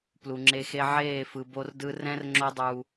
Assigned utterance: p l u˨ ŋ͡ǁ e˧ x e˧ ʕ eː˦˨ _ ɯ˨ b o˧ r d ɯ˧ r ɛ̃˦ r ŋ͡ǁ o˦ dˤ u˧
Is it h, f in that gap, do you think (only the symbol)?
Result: f